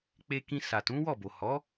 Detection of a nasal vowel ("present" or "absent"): present